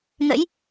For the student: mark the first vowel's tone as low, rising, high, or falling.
rising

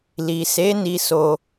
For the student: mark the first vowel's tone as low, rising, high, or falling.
low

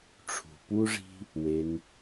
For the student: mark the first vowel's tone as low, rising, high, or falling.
low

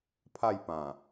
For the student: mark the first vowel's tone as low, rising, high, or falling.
falling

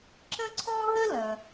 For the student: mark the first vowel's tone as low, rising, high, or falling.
high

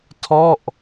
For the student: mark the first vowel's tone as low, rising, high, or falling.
falling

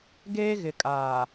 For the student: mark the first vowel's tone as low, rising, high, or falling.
high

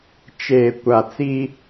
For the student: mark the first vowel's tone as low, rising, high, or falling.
low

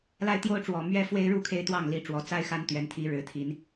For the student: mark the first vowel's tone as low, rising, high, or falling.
high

